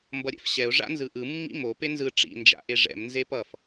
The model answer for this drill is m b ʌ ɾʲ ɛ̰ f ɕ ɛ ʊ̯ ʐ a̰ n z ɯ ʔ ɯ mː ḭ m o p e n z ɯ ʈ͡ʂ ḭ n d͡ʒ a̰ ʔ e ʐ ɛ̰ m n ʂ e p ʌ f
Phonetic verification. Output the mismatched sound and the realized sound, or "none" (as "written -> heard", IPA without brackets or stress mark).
ʂ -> z